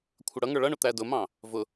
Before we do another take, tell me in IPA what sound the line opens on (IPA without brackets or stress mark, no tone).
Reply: kʷʰ